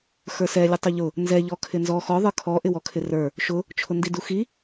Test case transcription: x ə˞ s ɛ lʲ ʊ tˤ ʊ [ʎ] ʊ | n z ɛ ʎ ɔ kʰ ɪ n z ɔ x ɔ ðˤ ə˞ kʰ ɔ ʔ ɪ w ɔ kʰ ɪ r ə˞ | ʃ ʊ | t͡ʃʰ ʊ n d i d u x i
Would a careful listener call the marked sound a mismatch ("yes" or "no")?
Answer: no